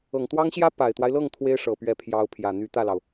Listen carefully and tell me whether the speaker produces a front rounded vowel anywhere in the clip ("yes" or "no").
yes